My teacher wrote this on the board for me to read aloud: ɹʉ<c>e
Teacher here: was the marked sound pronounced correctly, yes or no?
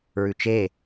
no